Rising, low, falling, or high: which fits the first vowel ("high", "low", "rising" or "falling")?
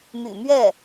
low